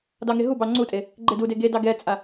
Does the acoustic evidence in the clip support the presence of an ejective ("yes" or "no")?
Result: yes